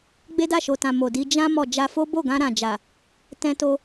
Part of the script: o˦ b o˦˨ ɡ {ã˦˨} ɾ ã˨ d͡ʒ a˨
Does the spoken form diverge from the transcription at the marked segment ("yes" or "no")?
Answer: yes